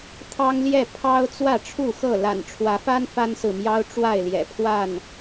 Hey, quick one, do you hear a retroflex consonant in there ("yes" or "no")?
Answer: yes